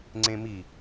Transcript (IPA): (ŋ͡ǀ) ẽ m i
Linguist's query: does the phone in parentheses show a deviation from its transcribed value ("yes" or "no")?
no